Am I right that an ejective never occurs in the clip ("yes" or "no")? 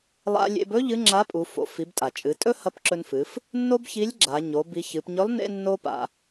no